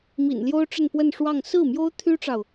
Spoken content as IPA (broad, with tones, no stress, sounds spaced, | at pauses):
m ḭ˨˩ n l j o˥ ʊ̯ ʈ͡ʂ ə˥˧ n p w ə˥˧ n ʂ w ɑ˥˧ ŋ s ɹ̩˥˩ m j o˥ ʊ̯ t̪ʰ y˥ ʈ͡ʂ ɑ˨ ʊ̯